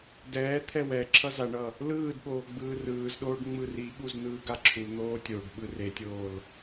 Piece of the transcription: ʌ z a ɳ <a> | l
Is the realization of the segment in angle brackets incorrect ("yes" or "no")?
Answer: yes